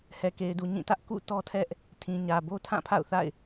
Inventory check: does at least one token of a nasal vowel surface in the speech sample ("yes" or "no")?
yes